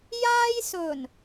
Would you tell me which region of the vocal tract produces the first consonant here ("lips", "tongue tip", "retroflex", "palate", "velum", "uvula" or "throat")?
palate